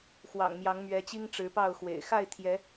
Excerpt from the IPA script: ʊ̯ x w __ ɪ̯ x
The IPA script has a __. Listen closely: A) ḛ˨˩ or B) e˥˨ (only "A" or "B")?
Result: A